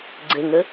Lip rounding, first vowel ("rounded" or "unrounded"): unrounded